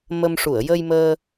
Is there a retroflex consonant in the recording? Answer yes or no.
yes